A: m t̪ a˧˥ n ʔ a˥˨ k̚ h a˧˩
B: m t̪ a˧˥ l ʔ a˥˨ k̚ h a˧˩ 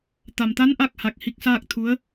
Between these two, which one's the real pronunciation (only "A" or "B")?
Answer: A